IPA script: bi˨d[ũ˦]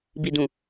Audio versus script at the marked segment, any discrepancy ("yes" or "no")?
yes